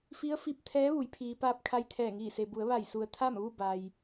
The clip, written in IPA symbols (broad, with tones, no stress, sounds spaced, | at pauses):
f i˧˥ ə̯ f i˧ p̚ t̪ʰ ɛː˧˥ ʋ u˩˧ j pʰ iː˩ p aː˧ p̚ kʰ a˧ j t̪ʰ ɛː˧˩ ŋ iː˧˩ s e˩ b u˩˧ ə̯ ʋ a˧˩ j s u˩ ə̯ t̪ʰ a˥˨ m ʋ u˥˨ b a˩ j